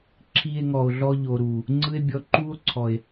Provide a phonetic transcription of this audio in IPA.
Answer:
ǁʰ i˧ e̯ ŋ ɔ˨ o̯ ɮ ɔ˧ ʎ o˨ ɾ u˨ | ŋ͡ǀ ɯ˦ e̯ bʲ ɔ˧ ǃ u˦ o̯ ǀʰ ɔ˨ e̯

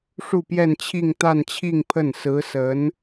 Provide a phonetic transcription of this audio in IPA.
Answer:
ʂ u˥˧ p j ɛ˥˧ n t͡ɕʰ i˥˧ ŋ t̪ a˥˧ n t͡ɕʰ i˥˧ ŋ pʰ ə˥˩ n s ɹ̩˧˥ s ə˧˥ n

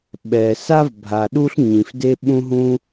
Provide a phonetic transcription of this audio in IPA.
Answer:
ɓ ɛ˩ s a˥ v bʱ a˩ ɗ u˥ ɬ ɲ ĩ˩ f d e˥ ɓ ũ˥ ɦ ũ˥

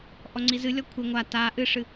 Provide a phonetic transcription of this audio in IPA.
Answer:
ʔ ɔ ŋ͡ǀ i z ɨ lʲ ɔ kʷʰ e ŋʷ a t a ʔ ɨ ʂ ɨ

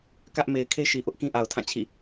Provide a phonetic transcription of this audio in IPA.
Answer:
k ä˦ ʔ m e˨ ɪ̯ kʰ e˦ ʃ i˨ ʔ ʊ˦ ʔ k ĩ˦ ʔ a˨ ʊ̯ tʰ ã˦˨ t͡ɕʰ ḭ˦˨

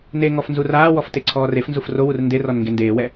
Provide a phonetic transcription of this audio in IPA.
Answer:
n e ŋ ɔ f n z u r aː w ɔ f t e ǀʰ ɔː r e f n z u f r o w u r n d e r ɔ n ŋ ɡ e n d eː w ɛ

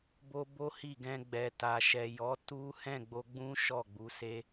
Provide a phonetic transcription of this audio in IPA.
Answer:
b o˦ b o˦ h i˦˨ ɡ ɛ̃˧ ɡ͡b ɛ˨ t a˨ ʃ ɛ˨ j ɔ˨˦ t u˦ h ɛ̃˦˨ ɡ͡b o˧ ɡ͡b ũ˦ ʃ ɔ˦˨ ɡ͡b u˨˦ s e˦

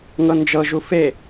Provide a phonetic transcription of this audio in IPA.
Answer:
ŋ ɤ n d͡ʒ ɤ ʒ u f e

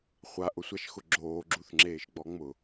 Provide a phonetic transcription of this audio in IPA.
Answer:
χʷ a ʔ ʊ sʷ a ʃ x ʊ ɡ͡ǁ oː ɡ͡ǁ u θ ŋ͡ǁ eː ʃ ɡ͡b ɔ ŋ͡m ʊ

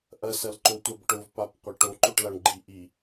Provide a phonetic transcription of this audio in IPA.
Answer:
ʔ ɐ s ɐ l ǃ o tʷ a b ʈ ʊ v p a p qʷ ɐ ʈ o ǃ o ʈ l a ɳ ɡ͡ǃ i ʔ i

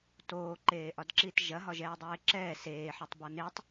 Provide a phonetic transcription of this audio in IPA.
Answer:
t oː ǃ eː ʔ ɒ d ǁ iː t ʒ ɐ ɦ ɒ ʒ ɛː dˤ eː ǁ ɛː s eː ħ ɐ tˤ b ɒ n e tˤ

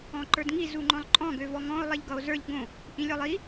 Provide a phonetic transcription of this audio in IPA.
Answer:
ɔ̃ ǃ ə˞ d ŋ i z u ŋ͡ǃ ɔ̃ lˠ ǃʼ ɔ̃ ɡ ø v ɔ ŋ ɔ̃ o̯ lˠ i ʎ ɡ ʌ o̯ z ə˞ ʎ ɡ õ | ʔ ĩ lʲ ɔ lˠ i

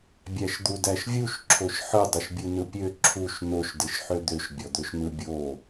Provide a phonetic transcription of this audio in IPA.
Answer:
bʲ æ ʃ d̪ u d æ ʃ vʲ u ʃ ǁʰ o ʃ ħ ɯ dˤ ɯ ʃ bʲ ɯ n ɯ pʲ ø ǁʰ u ʃ n o ʃ d ɯ ʃ ħ ø d̪ ø ʃ bʲ ɔ d̪ ø ʃ n ɯ bʲ o

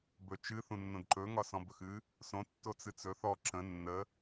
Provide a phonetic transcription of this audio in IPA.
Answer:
b ɵ t͡ʃ ɨ θ ũ nː õ d ǃ ɵ ŋ ɒ s ɔ̃ b ɵ x ɨ | s õ tː o t͡s ɨ t͡s ɵ θ ɔ ǁ ə̃ nː ə

